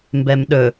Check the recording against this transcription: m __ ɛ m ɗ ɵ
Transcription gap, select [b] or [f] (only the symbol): b